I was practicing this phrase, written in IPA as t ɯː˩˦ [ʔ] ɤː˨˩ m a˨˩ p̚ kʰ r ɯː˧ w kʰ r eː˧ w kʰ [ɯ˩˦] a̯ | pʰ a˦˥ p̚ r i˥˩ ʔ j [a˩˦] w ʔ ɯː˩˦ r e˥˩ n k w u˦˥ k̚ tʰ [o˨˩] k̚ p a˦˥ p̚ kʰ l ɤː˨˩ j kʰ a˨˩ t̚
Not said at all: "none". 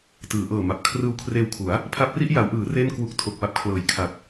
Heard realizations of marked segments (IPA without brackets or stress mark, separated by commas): ʔ, u˩˦, a˩˦, o˨˩